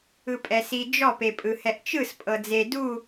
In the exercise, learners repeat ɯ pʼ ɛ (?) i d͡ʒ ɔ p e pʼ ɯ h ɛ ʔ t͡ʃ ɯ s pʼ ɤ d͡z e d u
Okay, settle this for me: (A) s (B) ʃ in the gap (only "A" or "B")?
A